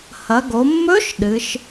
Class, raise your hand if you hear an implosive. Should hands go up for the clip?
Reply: yes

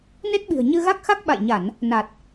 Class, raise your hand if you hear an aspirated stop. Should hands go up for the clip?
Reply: no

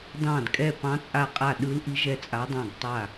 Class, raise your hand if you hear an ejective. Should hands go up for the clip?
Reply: yes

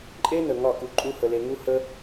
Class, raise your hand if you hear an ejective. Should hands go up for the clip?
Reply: yes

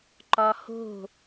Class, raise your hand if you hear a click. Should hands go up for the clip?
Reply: yes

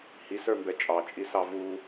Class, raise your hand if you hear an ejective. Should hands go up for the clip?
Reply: yes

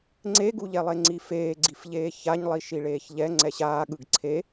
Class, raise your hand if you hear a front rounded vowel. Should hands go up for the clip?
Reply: no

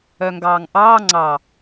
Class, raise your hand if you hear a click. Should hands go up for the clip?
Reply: yes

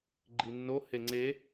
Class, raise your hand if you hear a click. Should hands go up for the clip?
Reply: yes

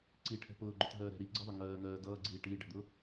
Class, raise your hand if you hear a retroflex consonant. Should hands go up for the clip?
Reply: yes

